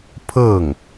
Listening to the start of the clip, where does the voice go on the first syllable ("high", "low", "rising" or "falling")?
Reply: falling